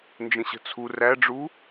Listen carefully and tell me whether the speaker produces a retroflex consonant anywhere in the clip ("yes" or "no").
yes